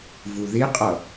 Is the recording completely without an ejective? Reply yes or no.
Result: no